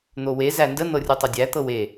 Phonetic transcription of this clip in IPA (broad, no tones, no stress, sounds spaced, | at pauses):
n̪ o w e z æ n d ə n̪ ɤ rʲ u tˤ ɘ dʲ æ t̪ ɤ w e